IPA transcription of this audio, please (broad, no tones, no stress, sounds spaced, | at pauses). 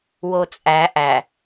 w o t͡sʼ æ ʔ æ